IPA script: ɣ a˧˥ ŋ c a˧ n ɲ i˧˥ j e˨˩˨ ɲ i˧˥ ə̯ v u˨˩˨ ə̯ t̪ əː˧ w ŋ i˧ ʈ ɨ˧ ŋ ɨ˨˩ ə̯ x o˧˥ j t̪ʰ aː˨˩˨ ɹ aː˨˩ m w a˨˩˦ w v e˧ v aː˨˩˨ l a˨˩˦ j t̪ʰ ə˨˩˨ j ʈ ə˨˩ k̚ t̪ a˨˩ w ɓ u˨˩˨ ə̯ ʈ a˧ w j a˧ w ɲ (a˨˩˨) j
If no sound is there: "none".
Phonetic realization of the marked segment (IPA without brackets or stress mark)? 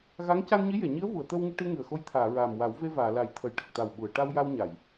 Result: a˨˩˨